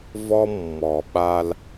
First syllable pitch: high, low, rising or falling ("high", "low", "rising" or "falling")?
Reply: high